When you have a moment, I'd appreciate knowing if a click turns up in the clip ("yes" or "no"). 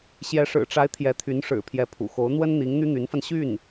no